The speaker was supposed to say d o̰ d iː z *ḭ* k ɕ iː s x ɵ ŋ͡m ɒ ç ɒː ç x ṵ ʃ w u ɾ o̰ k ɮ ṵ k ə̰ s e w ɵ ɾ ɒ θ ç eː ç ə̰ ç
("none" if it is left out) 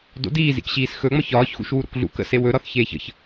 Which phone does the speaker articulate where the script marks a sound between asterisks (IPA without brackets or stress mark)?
ḭ